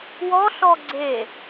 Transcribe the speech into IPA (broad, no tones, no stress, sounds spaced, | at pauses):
w ɔ ɬ ɔ ɡ͡ǀ e